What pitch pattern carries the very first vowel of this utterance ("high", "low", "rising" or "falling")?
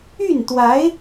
falling